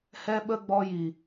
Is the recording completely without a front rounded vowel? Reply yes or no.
yes